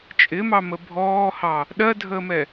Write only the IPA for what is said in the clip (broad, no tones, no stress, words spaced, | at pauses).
t͡ʃʼɪmɑmə bʱɔːhɑ | ɗɜdʱəːmɛ